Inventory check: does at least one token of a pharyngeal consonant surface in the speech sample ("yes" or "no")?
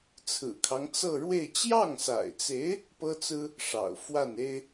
no